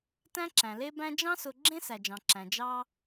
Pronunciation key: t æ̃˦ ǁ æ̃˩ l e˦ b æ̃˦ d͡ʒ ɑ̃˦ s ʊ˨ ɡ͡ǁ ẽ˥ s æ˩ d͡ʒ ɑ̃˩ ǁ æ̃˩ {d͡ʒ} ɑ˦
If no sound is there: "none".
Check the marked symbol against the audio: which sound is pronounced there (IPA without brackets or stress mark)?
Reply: d͡ʒ